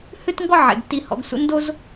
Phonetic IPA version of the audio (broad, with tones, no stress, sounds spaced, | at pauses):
h ɨ˥ t ŋ ɡ ɔ˥ ʕ ḛ˩ ɡ tː i˨ h ɔ̰˨ ɡ s ṵ˦ n d o˥ z